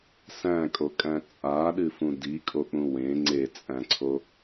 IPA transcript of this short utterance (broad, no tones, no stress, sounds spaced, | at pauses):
s æ̃ kʼ o kʼ æ̃ t͡sʼ a ɗ ɨ f ũ d i kʼ o k͡p ũ w ẽ ŋ͡ǀ e t͡sʼ æ̃ ǀʰ o